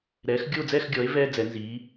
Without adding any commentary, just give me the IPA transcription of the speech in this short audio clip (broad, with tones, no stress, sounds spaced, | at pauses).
ɾ ɛː˩˥ x ɡʲ o˥˨ d͡z ɛ˥˨ x ɡʲ ɔ˩˥ e̯ v ɛː˥ d͡z ɛ˩˥ n z iː˩˥